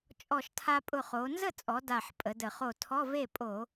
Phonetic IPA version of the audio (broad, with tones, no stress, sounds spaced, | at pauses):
t͡ʃʼ ɔ˧˩ ʃ tʰ a˧ pʼ ʊ˧˩ χ o˩˧ n z ə˥˩ t͡sʼ ɔ˩˧ d a˧˩ ħ pʼ ə˩˧ d ə˧˩˧ χ o˧˩ tʰ ɔ˧˥˧ v e˥˩ pʼ o˧˩˧